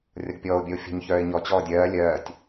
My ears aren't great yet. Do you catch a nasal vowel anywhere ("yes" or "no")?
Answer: no